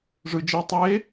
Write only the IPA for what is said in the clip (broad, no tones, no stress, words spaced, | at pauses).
ʐɯ d͡ʒe tˤe